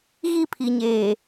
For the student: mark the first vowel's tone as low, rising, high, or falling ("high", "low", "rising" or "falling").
falling